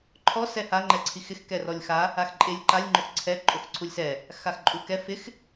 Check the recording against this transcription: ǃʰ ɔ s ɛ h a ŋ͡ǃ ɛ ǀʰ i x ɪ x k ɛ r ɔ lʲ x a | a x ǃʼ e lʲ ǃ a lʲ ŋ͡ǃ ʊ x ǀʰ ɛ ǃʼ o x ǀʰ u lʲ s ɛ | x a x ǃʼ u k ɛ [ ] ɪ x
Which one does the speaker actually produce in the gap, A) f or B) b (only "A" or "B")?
A